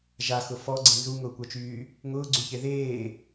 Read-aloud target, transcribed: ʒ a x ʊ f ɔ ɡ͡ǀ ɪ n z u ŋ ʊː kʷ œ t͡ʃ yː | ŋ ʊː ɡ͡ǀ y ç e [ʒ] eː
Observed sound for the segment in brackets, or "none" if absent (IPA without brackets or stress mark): ð